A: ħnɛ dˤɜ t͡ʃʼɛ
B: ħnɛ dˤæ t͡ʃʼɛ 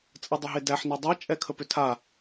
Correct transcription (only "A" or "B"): B